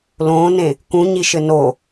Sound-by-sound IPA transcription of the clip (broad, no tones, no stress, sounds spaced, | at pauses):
l õː n ẽ | k ũ ɲ i ʃ ɘ n o